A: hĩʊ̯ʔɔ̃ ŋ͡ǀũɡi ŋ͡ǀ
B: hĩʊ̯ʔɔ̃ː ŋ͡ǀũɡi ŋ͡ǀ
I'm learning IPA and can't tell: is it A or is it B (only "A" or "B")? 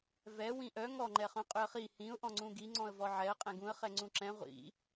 A